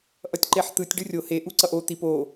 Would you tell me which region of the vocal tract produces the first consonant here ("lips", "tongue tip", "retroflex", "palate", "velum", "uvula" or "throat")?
throat